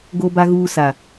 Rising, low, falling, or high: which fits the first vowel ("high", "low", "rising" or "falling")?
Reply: low